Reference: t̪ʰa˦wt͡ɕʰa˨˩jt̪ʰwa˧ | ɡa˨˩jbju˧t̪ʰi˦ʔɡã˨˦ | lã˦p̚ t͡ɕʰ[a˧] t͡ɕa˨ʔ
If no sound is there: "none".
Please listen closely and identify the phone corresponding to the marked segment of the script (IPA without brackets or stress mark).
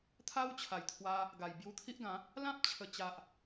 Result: ə˧